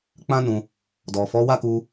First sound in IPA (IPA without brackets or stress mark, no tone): k͡p